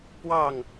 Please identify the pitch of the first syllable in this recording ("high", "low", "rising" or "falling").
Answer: falling